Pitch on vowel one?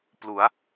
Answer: rising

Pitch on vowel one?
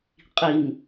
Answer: low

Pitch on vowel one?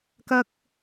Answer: high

